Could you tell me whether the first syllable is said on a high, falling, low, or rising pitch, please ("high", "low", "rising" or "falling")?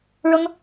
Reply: high